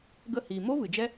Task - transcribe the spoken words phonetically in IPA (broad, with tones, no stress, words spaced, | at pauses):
ɡə˧hiː˨mo˦ vɨ˨d͡ʒɛ˦